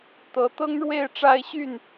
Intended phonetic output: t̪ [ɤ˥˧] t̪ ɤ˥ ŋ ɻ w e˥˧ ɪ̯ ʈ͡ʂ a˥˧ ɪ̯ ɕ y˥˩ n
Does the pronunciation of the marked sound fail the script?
yes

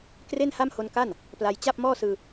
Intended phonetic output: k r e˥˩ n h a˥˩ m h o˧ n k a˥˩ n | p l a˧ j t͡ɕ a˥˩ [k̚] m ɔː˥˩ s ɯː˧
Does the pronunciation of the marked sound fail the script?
yes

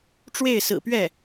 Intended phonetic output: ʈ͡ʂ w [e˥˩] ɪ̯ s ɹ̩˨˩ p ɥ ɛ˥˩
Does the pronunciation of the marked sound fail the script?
no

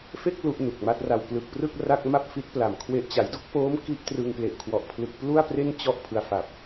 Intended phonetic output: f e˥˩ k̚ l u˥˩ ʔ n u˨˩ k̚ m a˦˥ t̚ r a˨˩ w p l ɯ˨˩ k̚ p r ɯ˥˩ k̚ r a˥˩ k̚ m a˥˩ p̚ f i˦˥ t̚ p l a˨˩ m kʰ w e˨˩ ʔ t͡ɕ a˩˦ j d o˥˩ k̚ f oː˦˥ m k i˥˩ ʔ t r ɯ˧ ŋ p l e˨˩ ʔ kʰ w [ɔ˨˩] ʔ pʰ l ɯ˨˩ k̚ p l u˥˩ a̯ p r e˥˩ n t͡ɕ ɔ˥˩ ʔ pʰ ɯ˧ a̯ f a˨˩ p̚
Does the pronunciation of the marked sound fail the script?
no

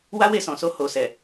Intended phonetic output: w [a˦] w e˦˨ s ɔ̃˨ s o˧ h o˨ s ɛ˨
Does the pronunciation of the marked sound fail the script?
no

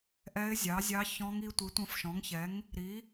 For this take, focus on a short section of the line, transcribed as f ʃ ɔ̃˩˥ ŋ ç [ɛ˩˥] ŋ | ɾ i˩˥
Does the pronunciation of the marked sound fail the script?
no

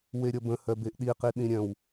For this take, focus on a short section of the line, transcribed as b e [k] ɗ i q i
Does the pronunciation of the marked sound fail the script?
yes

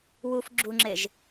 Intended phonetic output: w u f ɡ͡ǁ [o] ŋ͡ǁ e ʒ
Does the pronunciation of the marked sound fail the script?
yes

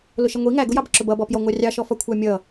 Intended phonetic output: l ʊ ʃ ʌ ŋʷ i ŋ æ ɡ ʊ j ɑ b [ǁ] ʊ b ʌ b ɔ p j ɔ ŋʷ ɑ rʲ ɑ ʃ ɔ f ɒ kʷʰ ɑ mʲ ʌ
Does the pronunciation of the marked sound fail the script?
no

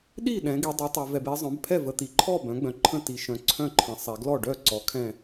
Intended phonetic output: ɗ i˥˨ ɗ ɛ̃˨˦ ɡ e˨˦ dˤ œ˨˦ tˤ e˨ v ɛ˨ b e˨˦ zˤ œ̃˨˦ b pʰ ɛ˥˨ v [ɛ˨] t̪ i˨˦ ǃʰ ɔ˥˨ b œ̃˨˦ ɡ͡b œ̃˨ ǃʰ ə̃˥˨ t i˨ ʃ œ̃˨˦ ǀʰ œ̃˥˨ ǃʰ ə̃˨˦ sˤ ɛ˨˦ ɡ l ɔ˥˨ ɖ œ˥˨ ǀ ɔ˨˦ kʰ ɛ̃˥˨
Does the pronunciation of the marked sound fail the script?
yes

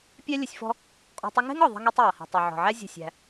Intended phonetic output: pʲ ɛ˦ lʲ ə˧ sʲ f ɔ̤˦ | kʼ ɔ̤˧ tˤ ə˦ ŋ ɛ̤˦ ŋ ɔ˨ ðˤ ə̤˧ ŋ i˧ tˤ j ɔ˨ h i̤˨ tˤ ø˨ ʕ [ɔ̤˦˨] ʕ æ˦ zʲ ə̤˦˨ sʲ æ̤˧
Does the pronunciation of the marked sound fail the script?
yes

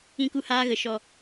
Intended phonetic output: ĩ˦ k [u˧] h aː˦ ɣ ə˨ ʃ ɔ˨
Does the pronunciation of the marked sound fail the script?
yes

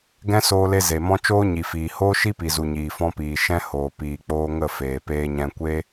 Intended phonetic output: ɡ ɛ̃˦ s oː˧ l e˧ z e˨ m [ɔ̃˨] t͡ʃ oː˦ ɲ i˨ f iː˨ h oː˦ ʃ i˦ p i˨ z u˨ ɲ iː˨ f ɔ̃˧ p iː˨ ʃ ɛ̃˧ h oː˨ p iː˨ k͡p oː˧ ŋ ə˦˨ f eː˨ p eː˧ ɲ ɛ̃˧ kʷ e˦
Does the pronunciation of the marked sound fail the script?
yes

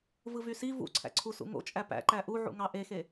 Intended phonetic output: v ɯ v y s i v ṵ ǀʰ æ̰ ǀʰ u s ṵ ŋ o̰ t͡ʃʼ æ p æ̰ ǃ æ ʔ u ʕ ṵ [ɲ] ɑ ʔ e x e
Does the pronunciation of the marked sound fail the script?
yes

